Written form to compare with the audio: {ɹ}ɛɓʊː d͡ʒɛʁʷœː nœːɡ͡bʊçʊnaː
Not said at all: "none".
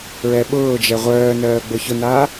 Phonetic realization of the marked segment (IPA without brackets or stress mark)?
ɹ